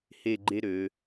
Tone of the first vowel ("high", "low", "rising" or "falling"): falling